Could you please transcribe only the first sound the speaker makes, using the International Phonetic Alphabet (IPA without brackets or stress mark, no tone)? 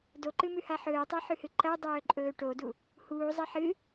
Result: d